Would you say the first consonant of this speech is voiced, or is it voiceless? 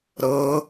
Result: voiced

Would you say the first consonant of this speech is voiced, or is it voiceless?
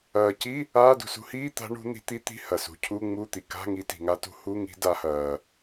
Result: voiceless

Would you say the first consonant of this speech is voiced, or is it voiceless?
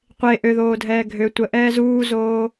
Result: voiceless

